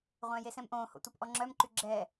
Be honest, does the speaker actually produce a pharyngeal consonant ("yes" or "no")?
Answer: no